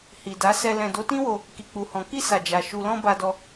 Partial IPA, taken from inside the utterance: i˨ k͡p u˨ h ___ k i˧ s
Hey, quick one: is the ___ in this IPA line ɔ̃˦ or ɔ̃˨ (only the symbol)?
ɔ̃˨